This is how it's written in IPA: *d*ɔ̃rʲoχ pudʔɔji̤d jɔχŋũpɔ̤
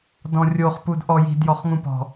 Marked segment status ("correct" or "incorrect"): correct